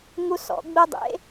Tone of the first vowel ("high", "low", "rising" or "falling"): high